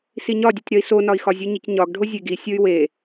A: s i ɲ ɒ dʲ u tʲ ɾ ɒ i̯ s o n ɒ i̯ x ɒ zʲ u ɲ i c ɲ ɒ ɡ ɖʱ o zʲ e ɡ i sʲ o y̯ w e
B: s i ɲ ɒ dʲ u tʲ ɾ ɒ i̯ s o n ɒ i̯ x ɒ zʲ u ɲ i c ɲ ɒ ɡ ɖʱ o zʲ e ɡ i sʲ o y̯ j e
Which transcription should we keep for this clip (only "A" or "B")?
A